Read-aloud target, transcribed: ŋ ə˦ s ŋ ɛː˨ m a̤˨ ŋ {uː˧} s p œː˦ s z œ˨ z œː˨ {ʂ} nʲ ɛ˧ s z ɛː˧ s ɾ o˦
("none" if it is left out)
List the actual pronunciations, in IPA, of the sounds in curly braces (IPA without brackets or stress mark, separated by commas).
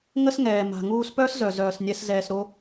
uː˧, s